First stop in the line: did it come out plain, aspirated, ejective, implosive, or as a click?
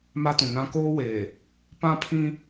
plain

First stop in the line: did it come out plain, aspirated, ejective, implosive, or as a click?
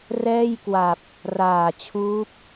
plain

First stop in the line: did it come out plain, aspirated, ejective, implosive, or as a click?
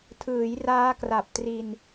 aspirated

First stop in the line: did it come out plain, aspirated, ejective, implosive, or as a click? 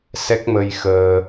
plain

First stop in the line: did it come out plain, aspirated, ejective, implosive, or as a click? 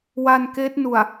plain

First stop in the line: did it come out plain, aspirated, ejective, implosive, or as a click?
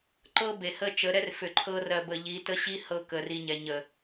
click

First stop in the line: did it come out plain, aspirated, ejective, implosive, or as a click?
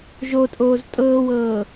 ejective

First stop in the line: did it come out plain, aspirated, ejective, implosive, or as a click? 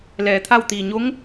aspirated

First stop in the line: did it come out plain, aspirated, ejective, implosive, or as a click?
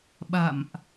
implosive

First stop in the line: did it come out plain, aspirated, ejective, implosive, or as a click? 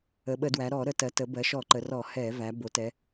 implosive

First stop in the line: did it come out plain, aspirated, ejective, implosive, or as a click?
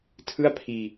aspirated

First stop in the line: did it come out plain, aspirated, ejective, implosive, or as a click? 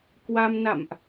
plain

